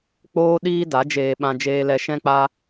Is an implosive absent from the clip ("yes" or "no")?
no